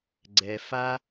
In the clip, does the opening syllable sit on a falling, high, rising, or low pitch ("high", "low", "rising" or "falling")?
low